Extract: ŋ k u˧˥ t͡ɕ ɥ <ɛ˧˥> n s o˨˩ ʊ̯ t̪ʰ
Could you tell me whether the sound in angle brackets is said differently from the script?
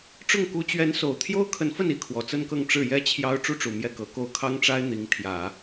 no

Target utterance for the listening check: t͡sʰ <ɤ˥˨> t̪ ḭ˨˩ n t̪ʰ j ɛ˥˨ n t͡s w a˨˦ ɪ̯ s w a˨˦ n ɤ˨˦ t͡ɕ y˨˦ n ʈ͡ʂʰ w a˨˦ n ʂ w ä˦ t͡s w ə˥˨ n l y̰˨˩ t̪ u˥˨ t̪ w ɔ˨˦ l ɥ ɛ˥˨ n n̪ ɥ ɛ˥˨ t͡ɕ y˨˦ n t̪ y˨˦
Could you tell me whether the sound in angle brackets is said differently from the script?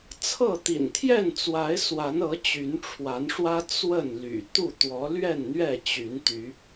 no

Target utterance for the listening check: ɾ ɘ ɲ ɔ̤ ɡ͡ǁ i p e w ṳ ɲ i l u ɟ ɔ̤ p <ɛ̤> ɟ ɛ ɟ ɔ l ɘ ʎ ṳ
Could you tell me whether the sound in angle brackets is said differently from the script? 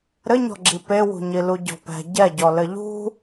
no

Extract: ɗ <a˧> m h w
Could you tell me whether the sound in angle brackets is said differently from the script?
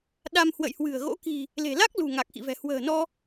no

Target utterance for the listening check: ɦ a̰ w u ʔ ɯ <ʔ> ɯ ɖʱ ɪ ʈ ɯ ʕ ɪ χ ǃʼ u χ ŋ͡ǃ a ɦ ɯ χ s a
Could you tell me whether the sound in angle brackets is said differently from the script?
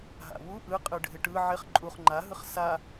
yes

